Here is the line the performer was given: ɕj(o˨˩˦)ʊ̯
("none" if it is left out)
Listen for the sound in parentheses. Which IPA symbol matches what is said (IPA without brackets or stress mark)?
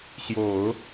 o˨˩˦